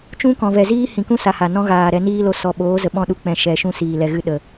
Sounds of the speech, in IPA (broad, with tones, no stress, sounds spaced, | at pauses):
t͡ʃ ũ˦ k ɔ̃˨ v ɛ˨ z iː˦ h ĩ˨ k ũ˦ s a˨ h a˨ n ɔ̃˦ ɣ aː˨ ɾ ɛ˧ n iː˦ l o˧ s ɔ˨ ɓ oː˨˦ z ə˨ ɓ ɔ̃˦˨ ɗ u˧ k͡p ɛ̃˨ ʃ ɛ˨ ʃ ũ˦ s iː˨ l ɛ˨ ɣ ɨ˦ ɗ ə˨